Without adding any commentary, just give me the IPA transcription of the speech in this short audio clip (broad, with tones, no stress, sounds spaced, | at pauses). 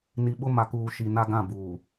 n i˨ ɓ ʊ˦ m a˨ k uː˨ ʃ i˨ n a˦ ɡ ã˦˨ b uː˨